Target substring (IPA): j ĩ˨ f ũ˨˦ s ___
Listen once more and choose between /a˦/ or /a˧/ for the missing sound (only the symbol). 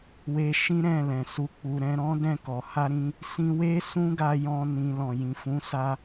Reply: a˧